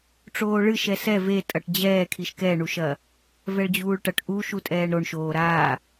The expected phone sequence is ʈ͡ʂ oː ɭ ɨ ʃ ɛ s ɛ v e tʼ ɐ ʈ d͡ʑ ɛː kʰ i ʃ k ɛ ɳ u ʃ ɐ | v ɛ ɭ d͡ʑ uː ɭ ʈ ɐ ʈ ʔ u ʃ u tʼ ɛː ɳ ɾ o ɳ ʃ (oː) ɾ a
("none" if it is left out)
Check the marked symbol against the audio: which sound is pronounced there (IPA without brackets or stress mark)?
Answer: oː